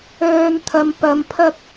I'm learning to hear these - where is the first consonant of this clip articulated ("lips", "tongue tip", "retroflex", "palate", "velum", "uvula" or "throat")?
tongue tip